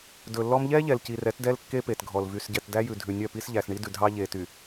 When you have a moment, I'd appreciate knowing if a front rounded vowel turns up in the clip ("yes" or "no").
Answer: yes